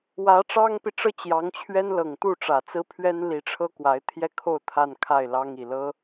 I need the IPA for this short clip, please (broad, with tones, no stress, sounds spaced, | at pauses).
w ä˧˥ ʈ͡ʂ ɑ˥ ŋ p i˨ ʈ͡ʂ ɤ˥˩ t͡ɕ j ɑ˧˥ ŋ t͡ɕʰ ɥ ɛ˥ n l ɤ˨˩ ŋ t̪ u˥˩ ʈ͡ʂ ä˨˩ t͡s ɹ̩˥ pʰ ɥ ɛ˥ n l i˧˥ ʈ͡ʂʰ ɤ˥ k w a˧˥ ɪ̯ t̪ʰ j ɛ˥˧ kʰ o˥˧ ʊ̯ t̪ʰ a˥˧ n kʰ a˥˩ ɪ̯ l ɑ˥ ŋ i˨˩ l ɤ˥